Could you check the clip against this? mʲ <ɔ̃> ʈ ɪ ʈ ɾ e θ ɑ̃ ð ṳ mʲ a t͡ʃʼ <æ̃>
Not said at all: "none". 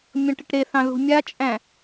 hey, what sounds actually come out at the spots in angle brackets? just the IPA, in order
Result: ɔ̃, æ̃

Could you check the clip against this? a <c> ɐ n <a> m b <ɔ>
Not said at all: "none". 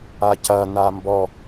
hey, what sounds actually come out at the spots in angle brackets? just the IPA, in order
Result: c, a, ɔ

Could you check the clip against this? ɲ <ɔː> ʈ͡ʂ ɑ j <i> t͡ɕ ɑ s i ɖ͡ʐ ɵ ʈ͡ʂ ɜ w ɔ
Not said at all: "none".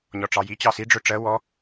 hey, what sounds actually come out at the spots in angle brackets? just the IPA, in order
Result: ɔ, i

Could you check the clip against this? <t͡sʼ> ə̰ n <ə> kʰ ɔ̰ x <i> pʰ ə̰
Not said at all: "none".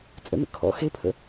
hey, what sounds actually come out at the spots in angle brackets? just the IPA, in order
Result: t͡sʼ, ə̰, e

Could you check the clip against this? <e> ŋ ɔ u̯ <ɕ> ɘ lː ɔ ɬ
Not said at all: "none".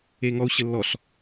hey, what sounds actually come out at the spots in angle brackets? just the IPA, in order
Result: e, ɕ

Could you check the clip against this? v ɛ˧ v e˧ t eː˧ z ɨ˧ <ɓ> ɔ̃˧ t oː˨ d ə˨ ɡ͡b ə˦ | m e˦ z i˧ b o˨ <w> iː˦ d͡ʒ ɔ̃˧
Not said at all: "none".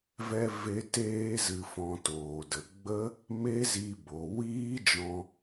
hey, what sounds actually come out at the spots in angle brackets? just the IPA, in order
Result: f, w

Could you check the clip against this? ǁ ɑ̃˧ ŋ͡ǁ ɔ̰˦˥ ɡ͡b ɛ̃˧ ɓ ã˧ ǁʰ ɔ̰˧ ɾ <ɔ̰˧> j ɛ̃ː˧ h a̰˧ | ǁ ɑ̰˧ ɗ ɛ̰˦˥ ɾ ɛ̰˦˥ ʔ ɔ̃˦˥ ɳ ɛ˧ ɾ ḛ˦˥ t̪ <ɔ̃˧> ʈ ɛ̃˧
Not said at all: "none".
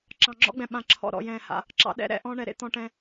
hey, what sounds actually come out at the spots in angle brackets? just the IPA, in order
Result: ɔ̰˧, ɔ̃˧

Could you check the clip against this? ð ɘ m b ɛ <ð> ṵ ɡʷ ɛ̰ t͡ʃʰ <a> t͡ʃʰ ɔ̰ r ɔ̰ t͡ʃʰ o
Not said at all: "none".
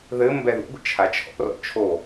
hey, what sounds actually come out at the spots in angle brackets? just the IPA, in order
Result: ð, a

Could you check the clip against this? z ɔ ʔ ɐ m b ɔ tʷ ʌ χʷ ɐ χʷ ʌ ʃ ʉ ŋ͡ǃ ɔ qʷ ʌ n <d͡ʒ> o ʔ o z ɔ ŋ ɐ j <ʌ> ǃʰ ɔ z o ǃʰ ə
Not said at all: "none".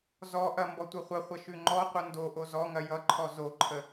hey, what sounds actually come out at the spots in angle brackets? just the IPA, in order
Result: d, ʌ

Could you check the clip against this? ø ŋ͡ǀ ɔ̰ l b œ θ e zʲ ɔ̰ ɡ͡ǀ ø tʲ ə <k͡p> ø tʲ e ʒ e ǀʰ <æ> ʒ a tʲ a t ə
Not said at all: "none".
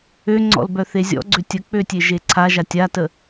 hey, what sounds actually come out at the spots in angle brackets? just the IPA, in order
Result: k͡p, a

